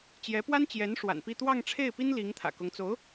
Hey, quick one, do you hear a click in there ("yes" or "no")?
no